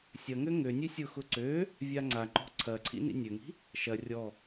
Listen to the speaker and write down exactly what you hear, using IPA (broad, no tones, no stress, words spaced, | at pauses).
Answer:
sʲɐŋø ŋønʲø sʲʊxʊ ǀø | vʲaŋ͡ǀaŋ͡ǃɔ̤ ǀʰɐǀʰḭ nḭnʲøŋi̤ | ʃɐ rʲɔ